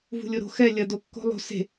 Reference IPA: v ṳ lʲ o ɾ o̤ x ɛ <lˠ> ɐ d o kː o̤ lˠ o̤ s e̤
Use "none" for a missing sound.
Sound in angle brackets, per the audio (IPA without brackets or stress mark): lʲ